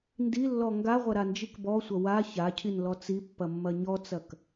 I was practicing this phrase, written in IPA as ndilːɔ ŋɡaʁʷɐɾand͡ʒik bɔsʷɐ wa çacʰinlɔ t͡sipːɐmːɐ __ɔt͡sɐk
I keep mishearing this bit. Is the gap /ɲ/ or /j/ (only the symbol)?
ɲ